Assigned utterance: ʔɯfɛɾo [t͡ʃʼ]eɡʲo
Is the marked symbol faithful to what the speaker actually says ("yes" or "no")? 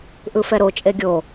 yes